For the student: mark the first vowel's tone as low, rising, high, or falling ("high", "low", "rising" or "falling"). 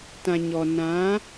low